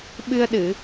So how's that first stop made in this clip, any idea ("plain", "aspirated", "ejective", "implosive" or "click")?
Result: implosive